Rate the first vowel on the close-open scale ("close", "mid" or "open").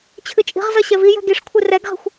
close